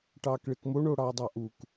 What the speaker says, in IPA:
ʈɑːkɭekmo ɳoɽɑːdˤɑʔuk

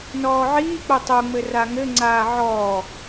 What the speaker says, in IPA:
nɔːʕiːk͡po tˤoŋ͡mɘ raŋɘŋ͡ǀaː ʕɔː

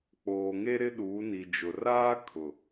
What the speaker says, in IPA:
k͡poː˨ ŋe˦ ɾɪ˦ɗuː˨˦ni˨ d͡ʒʊ˨ raː˦kʰʊ˨

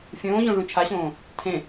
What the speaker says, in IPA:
fʲõːʑõ ʐũt͡ʃʰaɕõː | tʰẽ

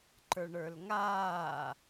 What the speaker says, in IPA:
ǃə˞ɳə˞lŋaː

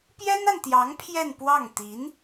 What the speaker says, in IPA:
pjɛ˥na˨nt̪jɑ˧˥ŋ pʰjɛ˥˧npwɑ˥˩ŋ t̪i˧˥n

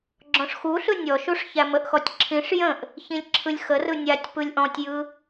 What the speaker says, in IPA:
ɡ͡ǁɔ̃ʂxuɬɯ nʲɔʃuʂ çæməʔxɔtʲ ǁʰĩʂ jə̃ʔ | çĩlʲǁʰɯlʲxərɯ nʲatʲ pɯlʲʔɔ̃tʲjɯ

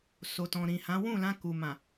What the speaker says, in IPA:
so˨tɔ̃˨ ɾĩ˨hã˨˦ wũ˦˨lã˧ku˨mã˨

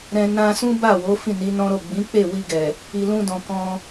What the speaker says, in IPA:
ɾɛ̃˧ nã˧sũ˦ ba˦˨wo˨˦ fĩ˦˨ni˨˦nɔ̃˦ɾo˦˨ ɡ͡bĩ˨˦k͡pe˦˨wi˧ɡɛ˨ | i˨lũ˧dɔ̃˨ kɔ̃˧

